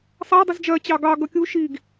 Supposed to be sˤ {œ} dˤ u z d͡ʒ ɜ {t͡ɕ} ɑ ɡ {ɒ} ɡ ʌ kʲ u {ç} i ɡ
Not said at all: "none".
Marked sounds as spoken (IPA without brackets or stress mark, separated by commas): æ, t͡ɕ, ɑ, ʃ